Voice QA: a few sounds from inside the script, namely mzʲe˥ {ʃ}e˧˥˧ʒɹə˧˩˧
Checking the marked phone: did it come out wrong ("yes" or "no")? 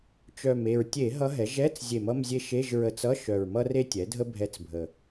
no